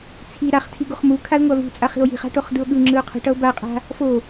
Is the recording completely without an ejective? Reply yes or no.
no